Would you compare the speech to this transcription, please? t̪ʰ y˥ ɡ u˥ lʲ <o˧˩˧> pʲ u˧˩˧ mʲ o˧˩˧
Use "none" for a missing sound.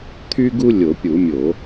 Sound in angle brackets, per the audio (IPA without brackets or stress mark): o˧˩˧